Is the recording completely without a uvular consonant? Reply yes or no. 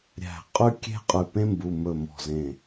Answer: no